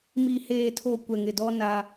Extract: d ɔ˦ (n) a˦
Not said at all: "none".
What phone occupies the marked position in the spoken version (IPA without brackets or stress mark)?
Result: n